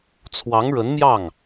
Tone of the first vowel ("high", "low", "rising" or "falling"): rising